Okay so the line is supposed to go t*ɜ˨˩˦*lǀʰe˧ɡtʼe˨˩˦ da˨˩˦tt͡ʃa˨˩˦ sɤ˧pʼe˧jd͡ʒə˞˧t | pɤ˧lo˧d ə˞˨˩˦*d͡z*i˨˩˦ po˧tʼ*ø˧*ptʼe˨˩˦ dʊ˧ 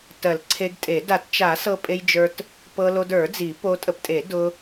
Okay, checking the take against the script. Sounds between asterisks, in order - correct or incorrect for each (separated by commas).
correct, correct, incorrect